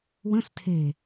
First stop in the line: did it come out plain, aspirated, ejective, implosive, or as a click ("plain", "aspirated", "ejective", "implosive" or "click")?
aspirated